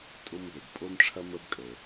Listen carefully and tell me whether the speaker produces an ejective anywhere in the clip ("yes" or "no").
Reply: yes